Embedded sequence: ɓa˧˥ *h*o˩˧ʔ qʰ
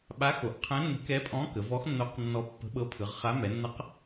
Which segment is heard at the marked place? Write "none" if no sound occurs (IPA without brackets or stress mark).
x